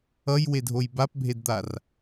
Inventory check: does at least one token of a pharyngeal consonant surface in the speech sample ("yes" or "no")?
no